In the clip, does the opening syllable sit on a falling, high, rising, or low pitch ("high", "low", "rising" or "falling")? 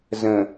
low